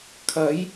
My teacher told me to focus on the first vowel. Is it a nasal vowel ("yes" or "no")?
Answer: no